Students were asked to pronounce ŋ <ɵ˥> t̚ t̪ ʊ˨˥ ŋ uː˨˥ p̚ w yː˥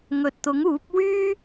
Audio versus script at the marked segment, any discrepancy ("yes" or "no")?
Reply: yes